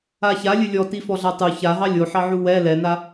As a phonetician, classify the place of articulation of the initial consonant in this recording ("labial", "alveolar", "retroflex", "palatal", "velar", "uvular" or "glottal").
palatal